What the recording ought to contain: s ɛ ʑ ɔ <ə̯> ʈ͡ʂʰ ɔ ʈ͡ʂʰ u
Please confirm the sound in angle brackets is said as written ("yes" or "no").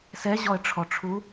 yes